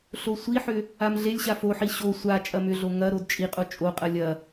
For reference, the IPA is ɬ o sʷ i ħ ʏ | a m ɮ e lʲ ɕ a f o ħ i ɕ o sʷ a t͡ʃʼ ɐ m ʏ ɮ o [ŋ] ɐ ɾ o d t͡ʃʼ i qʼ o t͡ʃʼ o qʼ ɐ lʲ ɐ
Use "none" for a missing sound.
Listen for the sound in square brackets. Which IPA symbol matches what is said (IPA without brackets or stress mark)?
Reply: ŋ